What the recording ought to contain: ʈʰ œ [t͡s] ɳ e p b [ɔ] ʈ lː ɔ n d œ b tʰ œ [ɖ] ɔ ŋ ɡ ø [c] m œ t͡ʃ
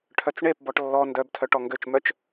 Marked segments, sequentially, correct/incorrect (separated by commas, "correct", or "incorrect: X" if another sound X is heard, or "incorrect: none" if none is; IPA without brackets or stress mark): correct, correct, incorrect: ʈ, incorrect: t͡ʃ